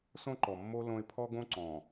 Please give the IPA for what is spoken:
s õ˦ ǃ ɔ˨ mː o˦ l õ˦ ɪ̯ pʰ ɔ˦ ɡ õ˦ ǀ ɔ̃˨

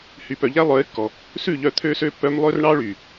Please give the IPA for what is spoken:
h y˨ p œ˨ ʎ æ˦ lˠ œ˨˦ ɪ̯ kː ɔ˨ | s ʉ˦˨ ʎ œ˧ t̪ʰ ø˦ s ø˦ pː œ˦ m lˠ ø˦ r ɳ ɑ˦ ɭ y˨

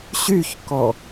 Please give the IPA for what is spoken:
ɕ y ç k ɔ

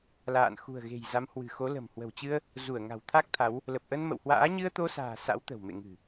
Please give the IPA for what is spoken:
l a̰ː˧˨ n x ṳ˨˩ ə̯ ɣ e̤˨˩ j z a˨˦ m h w ɨ̤˨˩ x o˨˦ l ə̤˨˩ m h w ə̤˨˩ w t͡ɕ ɨ˧ ə̯ | z u˧˩ ə̯ ŋ a̤˨˩ w t̪ʰ a˦˥ k̚ t̪ʰ a˨˦ w | l ə˨˩ p̚ ʔ ə˧ n m ə̰˧˨ w h w a̰ː˧˥ ɲ ɨ˧ ə̯ t̪ o˧ s a̤ː˨˩ s a̰˧˥ w t̪ ə̤˨˩ w m ḛ˧˨ ŋ ɨ̤˨˩

